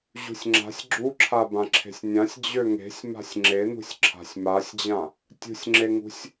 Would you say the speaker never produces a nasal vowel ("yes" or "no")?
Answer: no